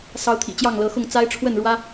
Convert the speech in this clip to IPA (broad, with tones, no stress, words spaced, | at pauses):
sɑ˨˦ʊ̯t̪ʰḭ˨˩ t͡ɕjɑ˥˨ŋlɤ˨˦xʊ˥˨ŋ t͡sa˦ɪ̯ʈ͡ʂʰwə˥˨nɻwä˦